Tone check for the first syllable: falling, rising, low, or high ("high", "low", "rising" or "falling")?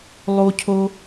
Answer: high